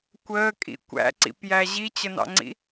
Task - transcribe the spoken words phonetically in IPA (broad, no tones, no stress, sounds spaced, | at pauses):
kʷ əː kʼ ḭ kʷ æ̰ ǀ ḭ p j æ ʑ i t͡ɕ ə n ɑ̰ ŋ͡ǀ ḭ